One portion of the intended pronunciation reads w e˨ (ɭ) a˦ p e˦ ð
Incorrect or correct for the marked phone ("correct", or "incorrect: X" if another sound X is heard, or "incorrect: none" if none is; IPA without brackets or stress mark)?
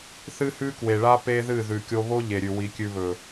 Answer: correct